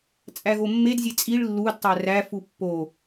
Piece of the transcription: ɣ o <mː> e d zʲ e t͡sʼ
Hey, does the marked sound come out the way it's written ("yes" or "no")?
yes